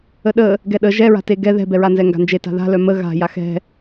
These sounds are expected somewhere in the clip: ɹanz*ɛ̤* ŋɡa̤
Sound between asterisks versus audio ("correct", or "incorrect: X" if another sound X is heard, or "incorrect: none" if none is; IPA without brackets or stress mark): incorrect: ɛ